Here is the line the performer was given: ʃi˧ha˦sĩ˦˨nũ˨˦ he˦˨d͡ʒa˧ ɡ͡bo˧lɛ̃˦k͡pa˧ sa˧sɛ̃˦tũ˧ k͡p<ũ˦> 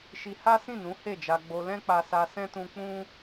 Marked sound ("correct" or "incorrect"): correct